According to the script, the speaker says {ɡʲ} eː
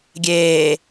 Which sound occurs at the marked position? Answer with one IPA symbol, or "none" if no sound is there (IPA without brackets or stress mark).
ɡʲ